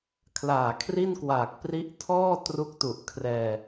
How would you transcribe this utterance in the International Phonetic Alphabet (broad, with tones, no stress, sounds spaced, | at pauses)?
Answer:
kʰ l aː˨˩ kʰ r i˥˩ n k w aː˨˩ k̚ p r i˦˥ ʔ tʰ ɔː˥˩ t r u˦˥ k̚ t u˨˩ ʔ kʰ r ɛː˧